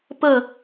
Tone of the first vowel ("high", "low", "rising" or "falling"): falling